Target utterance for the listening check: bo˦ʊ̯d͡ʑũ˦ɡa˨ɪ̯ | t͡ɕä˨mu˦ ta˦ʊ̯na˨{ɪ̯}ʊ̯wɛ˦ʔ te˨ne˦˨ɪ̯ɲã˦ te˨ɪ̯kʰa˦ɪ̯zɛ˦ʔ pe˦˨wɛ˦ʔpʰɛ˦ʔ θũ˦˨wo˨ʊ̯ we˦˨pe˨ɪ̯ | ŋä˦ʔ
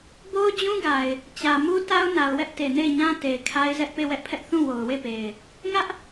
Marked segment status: incorrect: none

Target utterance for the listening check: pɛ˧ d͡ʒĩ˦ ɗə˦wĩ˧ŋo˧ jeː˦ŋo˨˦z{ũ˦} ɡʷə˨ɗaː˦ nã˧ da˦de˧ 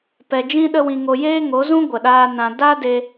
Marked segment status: correct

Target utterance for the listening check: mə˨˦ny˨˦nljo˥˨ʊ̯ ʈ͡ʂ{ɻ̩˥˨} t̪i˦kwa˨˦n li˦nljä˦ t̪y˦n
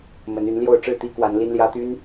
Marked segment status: correct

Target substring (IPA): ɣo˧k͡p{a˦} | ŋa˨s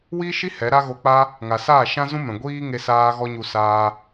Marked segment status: correct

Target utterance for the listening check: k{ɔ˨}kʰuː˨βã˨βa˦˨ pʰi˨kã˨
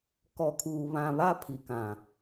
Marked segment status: correct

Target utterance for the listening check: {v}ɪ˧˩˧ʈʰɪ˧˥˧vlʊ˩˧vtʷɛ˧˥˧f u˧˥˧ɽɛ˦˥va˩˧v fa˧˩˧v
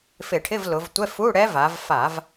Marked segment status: incorrect: f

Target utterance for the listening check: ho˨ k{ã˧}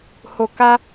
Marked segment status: incorrect: a˧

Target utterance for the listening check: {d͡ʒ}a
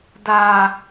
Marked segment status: incorrect: d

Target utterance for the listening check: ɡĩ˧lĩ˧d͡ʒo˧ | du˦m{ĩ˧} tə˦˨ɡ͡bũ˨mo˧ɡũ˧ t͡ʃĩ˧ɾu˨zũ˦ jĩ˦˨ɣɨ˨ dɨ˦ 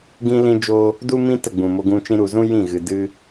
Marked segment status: incorrect: ĩ˦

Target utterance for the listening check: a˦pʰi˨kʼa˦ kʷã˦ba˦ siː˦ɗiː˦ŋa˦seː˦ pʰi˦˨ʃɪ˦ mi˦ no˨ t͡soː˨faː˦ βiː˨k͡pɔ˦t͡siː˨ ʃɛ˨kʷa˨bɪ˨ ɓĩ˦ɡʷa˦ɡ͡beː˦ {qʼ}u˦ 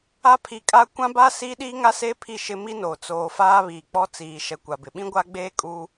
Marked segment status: incorrect: kʼ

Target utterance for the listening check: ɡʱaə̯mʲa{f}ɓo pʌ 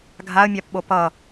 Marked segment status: incorrect: p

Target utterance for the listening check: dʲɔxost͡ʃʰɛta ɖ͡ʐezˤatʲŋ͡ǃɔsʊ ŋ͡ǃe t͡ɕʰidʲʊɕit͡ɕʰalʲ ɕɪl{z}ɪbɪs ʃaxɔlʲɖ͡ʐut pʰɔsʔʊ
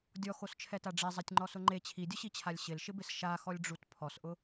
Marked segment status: incorrect: ʃ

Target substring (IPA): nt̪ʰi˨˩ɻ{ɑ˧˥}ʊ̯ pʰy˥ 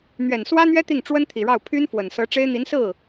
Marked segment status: incorrect: ɑ˥˩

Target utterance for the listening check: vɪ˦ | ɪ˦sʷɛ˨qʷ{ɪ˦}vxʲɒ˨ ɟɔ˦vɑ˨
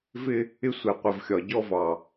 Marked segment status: incorrect: ɪ˨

